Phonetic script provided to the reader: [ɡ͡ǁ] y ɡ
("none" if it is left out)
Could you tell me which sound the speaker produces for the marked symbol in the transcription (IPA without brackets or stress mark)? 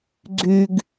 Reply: ɡ͡ǀ